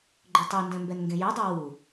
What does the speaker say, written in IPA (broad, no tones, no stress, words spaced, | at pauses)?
ɡ͡ǃʏtˤundɛ̃ mbɛnŋɡẽjødˤu wu